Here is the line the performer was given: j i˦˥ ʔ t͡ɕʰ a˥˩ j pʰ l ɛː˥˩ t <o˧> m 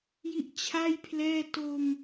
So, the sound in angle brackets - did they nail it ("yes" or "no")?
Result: yes